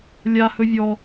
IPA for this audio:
lʲ a h ɵ vʲ ɔ

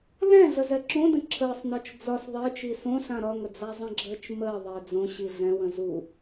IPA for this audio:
l ɛ̃ ɮ ə z ɛ ǁ õ d ə̃ ǁʰ əː sˤ n ɒ t͡ʃ d͡z ɒ s ðˤ əː t͡ʃ i s õ ɬ ã ɾ ɒ ŋ ə d͡z a zˤ ə̃ ɡ͡ǁ əː t͡ʃ m əː ðˤ əː d͡z õ ɕ i ɮ ɛ̃ w ə̃ z u

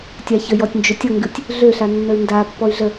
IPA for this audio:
tʲ a ç ə j ɔ tʲ n d͡ʒ ø tʲ ʌ ŋ ɡ ɨ tʲ | ɮ ø ɬ a nː ə y̯ n d a pː ɔ y̯ ɮ ə

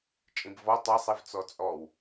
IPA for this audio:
t͡ʃʼ ĩ b v ɔ tˤ ɐ sˤ i v t͡s ɔ t͡sʼ ɔ w

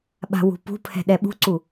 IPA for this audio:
ɓ a̤ w ṳ p ṳ pʰ ɛ̤ ɗ ɛ ɓ ṳ ǀ u

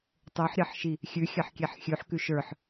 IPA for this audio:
tˤ ə˞ ħ ɾʲ ɑ ħ ʃ i | xʲ ʉ xʲ ɑ ħ kʲ ɛ ħ xʲ ʉ ħ k ʉ ʃ ə˞ ħ

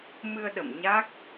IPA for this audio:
m ɨ˧ ə̯ ɗ ə̰˧˨ m ɲ a˦˥ k̚

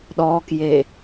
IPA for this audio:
ɗ ɔ k j e

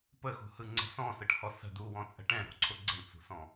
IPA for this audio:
p ə x ṳ h ɯ ŋ͡ǀ ə̤ s ɔ̃ s ɯ ʈ h ɔ s ə̤ d u w ɔ̃ t͡sʼ ə̤ ʈ ɛ̃ ɾ ɔ̤ ǀʰ ʊ ɡ͡ǀ ə̤ ɳ t͡s ṳ s ɔ̃

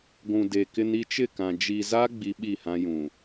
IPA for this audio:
ɡʷ ũ˨ d e˨ k ɪ˦ n i˦ t͡ʃ ɪ˦˨ k ã˨ d͡ʒ i˨ z a˦ ɡ͡b i˦ ɓ i˦˨ h ã˦ j ũ˨

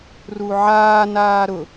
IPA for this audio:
r u ʕ aː n aː ɾ ʊ

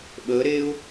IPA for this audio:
ɓ əː ɾ eː ʊ̯

